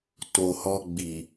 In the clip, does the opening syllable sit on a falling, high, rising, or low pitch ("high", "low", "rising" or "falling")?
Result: low